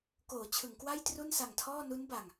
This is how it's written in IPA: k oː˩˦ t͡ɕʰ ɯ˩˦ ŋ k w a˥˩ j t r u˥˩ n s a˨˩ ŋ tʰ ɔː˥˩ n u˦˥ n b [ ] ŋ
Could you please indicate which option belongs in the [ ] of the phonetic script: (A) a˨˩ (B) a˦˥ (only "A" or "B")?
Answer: A